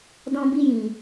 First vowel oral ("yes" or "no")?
no